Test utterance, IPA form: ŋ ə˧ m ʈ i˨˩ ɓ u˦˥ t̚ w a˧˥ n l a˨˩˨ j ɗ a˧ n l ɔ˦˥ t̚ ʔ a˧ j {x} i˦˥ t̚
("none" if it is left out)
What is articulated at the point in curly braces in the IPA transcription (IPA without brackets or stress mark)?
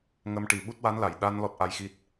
x